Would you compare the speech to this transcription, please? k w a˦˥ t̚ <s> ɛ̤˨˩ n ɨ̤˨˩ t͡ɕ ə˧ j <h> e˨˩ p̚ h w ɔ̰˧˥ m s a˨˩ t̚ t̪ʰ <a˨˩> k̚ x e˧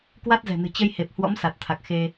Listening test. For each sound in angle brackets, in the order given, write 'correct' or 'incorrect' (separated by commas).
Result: incorrect, correct, correct